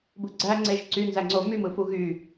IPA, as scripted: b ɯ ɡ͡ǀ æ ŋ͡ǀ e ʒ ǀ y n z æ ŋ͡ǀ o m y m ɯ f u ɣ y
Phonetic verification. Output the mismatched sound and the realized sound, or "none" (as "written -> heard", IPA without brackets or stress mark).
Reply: none